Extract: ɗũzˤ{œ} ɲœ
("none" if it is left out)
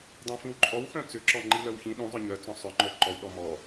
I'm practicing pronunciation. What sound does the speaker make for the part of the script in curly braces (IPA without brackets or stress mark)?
œ